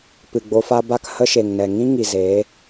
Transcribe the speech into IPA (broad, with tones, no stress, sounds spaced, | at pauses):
p ɨ˨ ɡ͡b o˧ f a˦ b a˦˨ k h ə˦ ʃ e˨ ŋ n ɛ˨ ŋ ĩ˦ ŋ i˨ z e˨˦